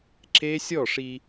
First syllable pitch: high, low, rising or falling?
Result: high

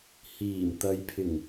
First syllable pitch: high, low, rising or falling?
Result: low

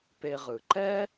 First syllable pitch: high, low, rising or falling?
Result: low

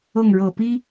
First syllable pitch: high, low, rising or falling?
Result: falling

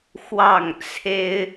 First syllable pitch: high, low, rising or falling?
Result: falling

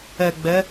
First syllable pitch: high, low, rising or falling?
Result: low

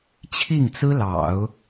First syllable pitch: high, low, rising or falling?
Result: falling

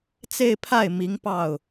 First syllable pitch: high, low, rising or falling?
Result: falling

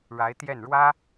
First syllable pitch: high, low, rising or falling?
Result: rising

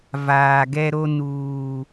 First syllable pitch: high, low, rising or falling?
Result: low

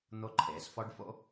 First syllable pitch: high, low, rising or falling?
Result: high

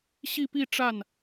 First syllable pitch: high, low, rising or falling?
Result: falling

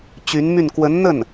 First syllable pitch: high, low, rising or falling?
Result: rising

